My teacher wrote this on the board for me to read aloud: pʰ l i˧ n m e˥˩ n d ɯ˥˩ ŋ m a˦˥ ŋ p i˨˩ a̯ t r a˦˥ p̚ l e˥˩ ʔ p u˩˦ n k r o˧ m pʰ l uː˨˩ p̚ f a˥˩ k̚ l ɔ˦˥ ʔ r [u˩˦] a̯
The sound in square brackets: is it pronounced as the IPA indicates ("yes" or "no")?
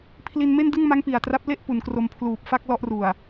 no